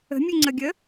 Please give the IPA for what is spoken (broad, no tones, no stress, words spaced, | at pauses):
ə̤mʲʉŋ͡ǀəɡʲə